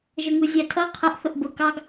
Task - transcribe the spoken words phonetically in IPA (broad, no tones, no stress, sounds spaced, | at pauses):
ʒ ə ŋ u zʲ æ tʰ ʌ qʰ ə ʔ θ ʊ ʔ b ʊ k ɑ ɡ